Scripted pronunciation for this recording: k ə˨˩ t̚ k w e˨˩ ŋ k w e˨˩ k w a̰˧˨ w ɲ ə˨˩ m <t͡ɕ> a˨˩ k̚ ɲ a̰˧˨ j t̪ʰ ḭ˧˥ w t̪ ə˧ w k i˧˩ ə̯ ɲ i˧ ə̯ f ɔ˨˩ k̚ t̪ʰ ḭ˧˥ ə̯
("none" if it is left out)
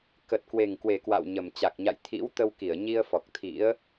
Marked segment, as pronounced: t͡ɕ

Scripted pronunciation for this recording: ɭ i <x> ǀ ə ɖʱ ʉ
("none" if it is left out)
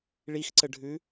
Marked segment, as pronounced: x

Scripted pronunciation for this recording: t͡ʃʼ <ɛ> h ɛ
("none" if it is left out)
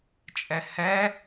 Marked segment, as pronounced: ɛ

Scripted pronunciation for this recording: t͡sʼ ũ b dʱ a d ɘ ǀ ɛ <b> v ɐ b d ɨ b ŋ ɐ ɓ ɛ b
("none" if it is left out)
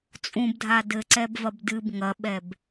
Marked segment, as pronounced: b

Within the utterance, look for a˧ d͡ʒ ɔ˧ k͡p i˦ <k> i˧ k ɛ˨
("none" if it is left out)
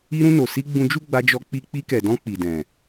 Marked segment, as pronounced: k͡p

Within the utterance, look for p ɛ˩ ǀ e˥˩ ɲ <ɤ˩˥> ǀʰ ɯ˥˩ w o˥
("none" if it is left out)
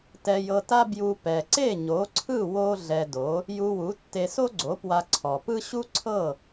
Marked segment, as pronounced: o˩˥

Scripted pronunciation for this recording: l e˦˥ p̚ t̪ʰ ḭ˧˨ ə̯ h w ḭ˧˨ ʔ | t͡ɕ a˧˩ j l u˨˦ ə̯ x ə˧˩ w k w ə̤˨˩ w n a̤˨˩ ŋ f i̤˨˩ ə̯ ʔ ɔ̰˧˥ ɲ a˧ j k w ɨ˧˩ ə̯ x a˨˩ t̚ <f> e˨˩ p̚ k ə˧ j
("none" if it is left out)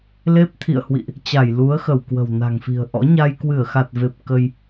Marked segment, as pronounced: v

